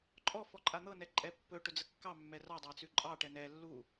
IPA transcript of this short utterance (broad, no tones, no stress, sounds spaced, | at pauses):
ǃʼ ɔ f ɔ ǃʼ a n̪ ɤ n ɛ ǃʼ ɛ pː ɵ ʈ ɵ d͡z ə kː ɑ mː ɛ r ɑ dˤ a t͡s ʉ ǃʼ ɑ ʈ ɛ n ɛ lː u